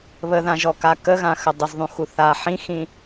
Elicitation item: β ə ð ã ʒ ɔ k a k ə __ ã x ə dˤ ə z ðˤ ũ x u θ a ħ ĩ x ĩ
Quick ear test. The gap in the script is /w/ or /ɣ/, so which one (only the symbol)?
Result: ɣ